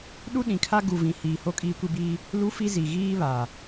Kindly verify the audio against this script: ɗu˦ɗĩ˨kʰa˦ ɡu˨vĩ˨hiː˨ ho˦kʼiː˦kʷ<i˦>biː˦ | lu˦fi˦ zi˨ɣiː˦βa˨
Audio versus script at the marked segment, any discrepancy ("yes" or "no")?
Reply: no